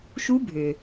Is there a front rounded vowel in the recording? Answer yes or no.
yes